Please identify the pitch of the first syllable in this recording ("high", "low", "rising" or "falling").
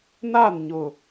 falling